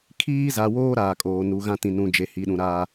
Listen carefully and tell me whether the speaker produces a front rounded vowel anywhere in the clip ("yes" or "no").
no